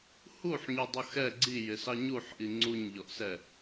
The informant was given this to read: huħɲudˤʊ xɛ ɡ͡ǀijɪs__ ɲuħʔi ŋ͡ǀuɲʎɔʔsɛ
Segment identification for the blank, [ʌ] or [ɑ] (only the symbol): ɑ